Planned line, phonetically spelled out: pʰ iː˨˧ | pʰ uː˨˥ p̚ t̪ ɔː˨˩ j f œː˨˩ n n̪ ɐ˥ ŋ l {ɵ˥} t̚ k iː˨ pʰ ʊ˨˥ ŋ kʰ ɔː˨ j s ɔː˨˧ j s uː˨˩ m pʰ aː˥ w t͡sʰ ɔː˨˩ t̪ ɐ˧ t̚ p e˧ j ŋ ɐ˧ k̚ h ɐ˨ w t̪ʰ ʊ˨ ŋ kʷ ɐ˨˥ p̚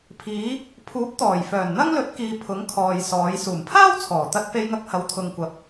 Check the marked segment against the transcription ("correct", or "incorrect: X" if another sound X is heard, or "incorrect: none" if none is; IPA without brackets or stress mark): incorrect: ɵ˨˥